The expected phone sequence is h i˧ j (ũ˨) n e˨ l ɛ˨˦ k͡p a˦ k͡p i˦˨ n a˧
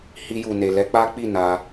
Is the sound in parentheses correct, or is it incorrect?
incorrect